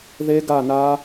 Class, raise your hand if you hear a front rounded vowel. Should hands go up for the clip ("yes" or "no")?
no